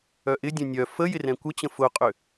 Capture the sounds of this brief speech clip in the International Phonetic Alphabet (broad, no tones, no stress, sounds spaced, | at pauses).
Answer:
œ ʔ ɪ dʲ œ̃ nʲ œ f ə j ɪ r ɛ̃ kʷ ə t͡ɕ ə̃ f ʊ qʼ ʏ